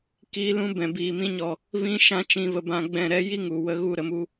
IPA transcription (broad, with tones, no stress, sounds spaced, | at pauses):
k iː˧ l ũ˦ b ɛ̃˨ b iː˨ m ĩ˧ ɲ ɔ˨ | v ĩ˧ ʃ ã˧ t͡ʃ ĩ˧ v ə˧ b ã˧ ɡ͡b ɛ̃˦˨ ɾ ɛ˦ j i˦ ŋ u˨ w ə˧ ɣ u˧ ɾ ə˨ m u˧